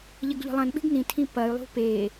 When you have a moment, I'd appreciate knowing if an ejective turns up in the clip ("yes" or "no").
no